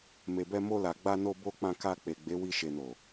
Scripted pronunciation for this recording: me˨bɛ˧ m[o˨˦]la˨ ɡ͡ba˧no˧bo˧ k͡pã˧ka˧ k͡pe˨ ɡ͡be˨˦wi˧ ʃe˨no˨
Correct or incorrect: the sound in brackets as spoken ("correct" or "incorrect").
incorrect